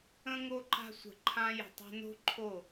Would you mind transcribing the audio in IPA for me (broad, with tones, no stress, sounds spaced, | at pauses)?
ə̃˧ ŋ o˧ ǃ a̤˧ sʷ ə̤˨ ǃʰ ã˧ j ə̤˨ tˤ a̤˧ n o̤˦ ǃʰ o˦˨